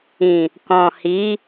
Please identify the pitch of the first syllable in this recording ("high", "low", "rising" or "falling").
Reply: low